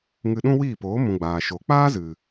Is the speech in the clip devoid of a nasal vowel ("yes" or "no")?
no